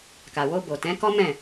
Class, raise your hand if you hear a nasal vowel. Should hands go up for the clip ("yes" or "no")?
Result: yes